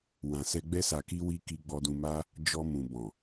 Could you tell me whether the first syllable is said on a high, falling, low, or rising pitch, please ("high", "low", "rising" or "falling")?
low